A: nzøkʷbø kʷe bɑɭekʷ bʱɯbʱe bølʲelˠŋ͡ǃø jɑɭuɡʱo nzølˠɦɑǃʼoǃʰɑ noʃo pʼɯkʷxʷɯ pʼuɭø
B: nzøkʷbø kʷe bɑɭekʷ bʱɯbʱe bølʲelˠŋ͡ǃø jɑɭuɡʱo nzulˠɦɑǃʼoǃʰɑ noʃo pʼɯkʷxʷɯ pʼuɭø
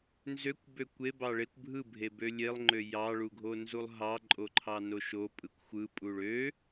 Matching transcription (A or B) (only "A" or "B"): B